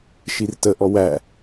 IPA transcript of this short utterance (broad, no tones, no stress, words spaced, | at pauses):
ʃirtə ʔɔwæ